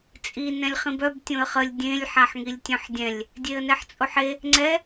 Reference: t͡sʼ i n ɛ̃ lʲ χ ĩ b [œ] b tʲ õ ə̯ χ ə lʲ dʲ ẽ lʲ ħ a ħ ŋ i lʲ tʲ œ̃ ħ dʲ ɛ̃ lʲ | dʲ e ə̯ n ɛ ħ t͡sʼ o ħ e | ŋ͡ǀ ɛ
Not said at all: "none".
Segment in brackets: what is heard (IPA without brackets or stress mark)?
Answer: œ